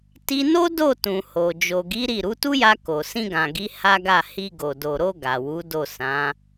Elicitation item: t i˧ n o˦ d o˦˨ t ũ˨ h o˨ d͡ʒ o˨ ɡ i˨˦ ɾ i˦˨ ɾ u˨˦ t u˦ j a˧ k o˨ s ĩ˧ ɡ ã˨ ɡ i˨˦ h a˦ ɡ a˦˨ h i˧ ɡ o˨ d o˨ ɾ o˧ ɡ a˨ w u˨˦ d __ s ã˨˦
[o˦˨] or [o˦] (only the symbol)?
o˦˨